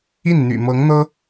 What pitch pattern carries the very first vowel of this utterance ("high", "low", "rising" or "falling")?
falling